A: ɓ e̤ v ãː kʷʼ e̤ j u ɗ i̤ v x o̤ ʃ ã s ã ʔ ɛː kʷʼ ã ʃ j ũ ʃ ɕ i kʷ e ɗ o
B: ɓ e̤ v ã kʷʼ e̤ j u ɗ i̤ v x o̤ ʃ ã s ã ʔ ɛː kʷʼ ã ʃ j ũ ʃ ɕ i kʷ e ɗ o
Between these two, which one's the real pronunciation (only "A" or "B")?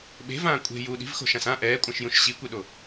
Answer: A